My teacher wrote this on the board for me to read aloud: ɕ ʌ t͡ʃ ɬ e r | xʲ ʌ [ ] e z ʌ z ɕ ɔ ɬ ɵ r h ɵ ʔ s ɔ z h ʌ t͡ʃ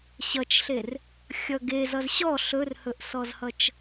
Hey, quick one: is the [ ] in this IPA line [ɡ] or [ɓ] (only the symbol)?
ɡ